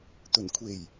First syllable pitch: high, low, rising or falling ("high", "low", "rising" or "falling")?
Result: low